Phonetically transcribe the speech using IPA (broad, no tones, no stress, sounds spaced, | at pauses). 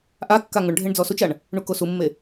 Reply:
ʔ a kː a ŋ ʊ ɳ ɖʱ e ɳ d͡z ɔ s u t͡ʃ a ɳ | ɳ u k o s u mː e